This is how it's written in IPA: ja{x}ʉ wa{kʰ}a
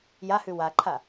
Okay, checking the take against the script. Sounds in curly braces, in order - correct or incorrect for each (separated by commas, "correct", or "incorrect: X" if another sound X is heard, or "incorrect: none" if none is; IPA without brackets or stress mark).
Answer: incorrect: h, incorrect: ǃʰ